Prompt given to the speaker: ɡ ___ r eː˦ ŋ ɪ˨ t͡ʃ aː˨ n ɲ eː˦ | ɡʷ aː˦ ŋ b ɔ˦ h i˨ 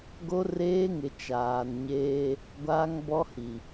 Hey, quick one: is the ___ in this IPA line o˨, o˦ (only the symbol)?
o˦